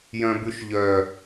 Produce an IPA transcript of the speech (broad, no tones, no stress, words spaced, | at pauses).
jœ̃bʉʃʎœ